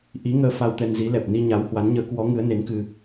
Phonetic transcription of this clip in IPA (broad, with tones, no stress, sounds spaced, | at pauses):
ʔ i˨˦ ŋ əː˧ f a˧ w t̪ ɛ˧ n z i˨˦ l ɛ˨˩ p̚ n i˧ ɲ a˨˦ w h w a˨˦ n ɲ əː˨˦ k w ɔ˨˦ ŋ ɨ˨˦ ə̯ n e˨˦ n k ɨ˧